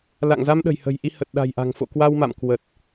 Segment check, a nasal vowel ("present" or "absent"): absent